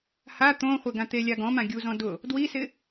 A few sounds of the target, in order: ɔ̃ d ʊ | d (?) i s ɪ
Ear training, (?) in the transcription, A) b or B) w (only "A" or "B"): B